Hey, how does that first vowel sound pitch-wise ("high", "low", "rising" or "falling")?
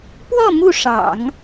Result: falling